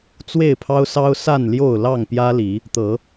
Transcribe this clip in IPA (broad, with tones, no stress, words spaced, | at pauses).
t͡swe˥˨ɪ̯pʰɑ˦ʊ̯sɑ˦ʊ̯ sa˥˨nljo˥˨ʊ̯lɑ˥˨ŋ pjä˦li˨˦ | t̪ɤ˨˦